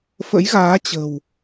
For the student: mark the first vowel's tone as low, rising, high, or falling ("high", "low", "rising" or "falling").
rising